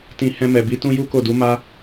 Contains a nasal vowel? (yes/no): yes